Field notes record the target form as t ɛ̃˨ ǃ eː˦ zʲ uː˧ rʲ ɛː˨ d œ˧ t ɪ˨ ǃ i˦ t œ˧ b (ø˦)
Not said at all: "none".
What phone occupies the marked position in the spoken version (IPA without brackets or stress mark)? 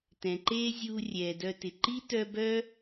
œ˦